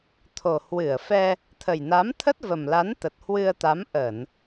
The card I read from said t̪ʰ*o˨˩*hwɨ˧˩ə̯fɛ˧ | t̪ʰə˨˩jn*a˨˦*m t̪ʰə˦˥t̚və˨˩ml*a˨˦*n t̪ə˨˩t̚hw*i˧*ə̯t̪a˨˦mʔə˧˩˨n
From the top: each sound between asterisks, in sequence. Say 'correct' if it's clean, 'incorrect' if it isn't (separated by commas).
correct, correct, correct, incorrect